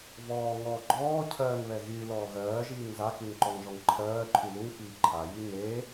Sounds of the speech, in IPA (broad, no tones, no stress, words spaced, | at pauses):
vɔːŋɔː ɡ͡ǃɔː cʰɜːŋβɛ ɣy lɔːɣɜːʒiːŋ zakyŋǃɔŋʒɔŋ ǃʰɜː ǃʰyluŋfiː ǃʰaji ŋe